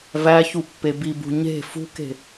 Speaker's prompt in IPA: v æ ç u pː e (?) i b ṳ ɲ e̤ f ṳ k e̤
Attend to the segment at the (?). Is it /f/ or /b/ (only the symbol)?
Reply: b